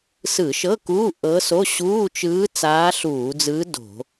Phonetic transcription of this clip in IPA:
s ɯ˧˩˧ ʃ ɤ˧˥˧ k uː˧˥˧ ʔ ɤ˧˥ s o˧˥˧ ɕ uː˧˥˧ t͡ʃ ɯː˧˥ t͡s aː˧˥ ɬ uː˧˩˧ d͡z ɯː˧˥ d o̤˧˩˧

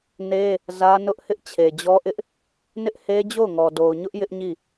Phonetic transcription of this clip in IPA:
n e˦ | z ä˦ n ʊ˦ ʔ h ɪ˦ ʔ t͡ɕʰ e˨ d͡ʑ ɔ˦ ʔ ɪ˦ ʔ | n ɪ˦ ʔ h e˦ d͡ʑ o˦˨ ʊ̯ ŋ ɔ˨ d o˨ ʊ̯ ɲ ʊ˦ ʔ j ɪ˦ ʔ ɲ i˦˨

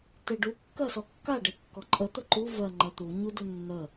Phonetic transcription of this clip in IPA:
t e ɖ u kː ɜ s ɔ kː a ɖ e kː ɔ ǃʼ ə t̪ ə ǃ u v ɜ ŋ͡ǃ ɜ t̪ u ɲ u d u nː ə

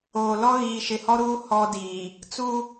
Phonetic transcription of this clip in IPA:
oː˨ l ɔ˦ ɣ iː˨ ʃ ɪ˨ h ɔ˦ ɾ uː˦ h ɔ˦ d iː˨ | t͡s u˦

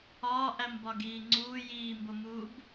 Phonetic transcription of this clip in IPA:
ɒː ʔ æ m b ɒ ɡ iː ŋ͡ǀ uː j iː m b o m uː b

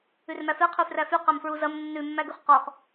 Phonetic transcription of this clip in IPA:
ʉ r m æ f e qʰ ʉ f r æ f y q æ m f ɹ u z ɐ m nː ʉ mː æ ɡ ʉ χ q ɔ χ

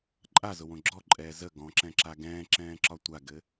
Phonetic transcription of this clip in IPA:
ǃʼ a z ʊ w õ ɡ͡ǁ ɔ ǃʼ ɛː z ə ɡ ɔ̃ ǁ ɛ̃ ǁ a ɡ ɛ̃ː ǁ ɛ̃ː ǁ ɒ tʷ a ɡ ɘ

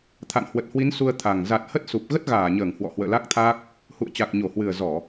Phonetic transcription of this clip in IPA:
t̪ʰ a̰˧˨ n h w ə˨˩ t̚ h w i˨˦ n s u˧ ə̯ t̪ʰ a˨˩ ŋ z a˨˩ t̚ h ə˦˥ t̚ s u˨˩ p̚ ɣ ə˦˥ t̚ ɣ aː˧˩ ɲ əː˧˩ ŋ h w ɔ̰˧˨ h w ə̰ː˧˨ l a˦˥ k̚ t̪ʰ aː˦˥ k̚ | h ṵ˧˨ ə̯ t͡ɕ a˨˩ k̚ ɲ o˧˩ h w ɨ˨˩ ə̯ z ɔ˧˩˨

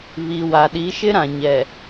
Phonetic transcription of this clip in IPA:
β i˨ w a˨ ɗ i˨˦ ʃ ɪ˦ ɾ ã˨ ɲ ɛ˨

